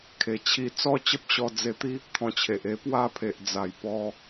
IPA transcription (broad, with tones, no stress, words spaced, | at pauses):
kʰe˧t͡ɕʰi˥˧ t͡sɔ˥˧t͡ɕə˦p̚ɕɔ˧ d͡ze˧t̪i˦ | t̪ʰɔ̃˧t͡ɕʰe˨ʔ e˧pwa˥˧pʰe˨ʔd͡za˨˩j pɔ˧